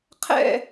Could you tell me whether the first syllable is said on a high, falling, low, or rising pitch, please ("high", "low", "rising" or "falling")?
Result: falling